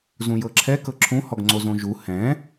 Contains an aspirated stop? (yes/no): yes